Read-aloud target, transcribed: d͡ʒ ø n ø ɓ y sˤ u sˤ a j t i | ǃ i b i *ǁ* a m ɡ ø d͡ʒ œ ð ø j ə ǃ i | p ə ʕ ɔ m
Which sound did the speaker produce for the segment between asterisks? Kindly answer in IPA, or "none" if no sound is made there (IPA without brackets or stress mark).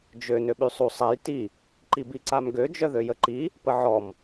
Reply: ǀ